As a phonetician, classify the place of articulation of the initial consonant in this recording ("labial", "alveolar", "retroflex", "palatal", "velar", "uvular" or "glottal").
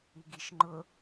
velar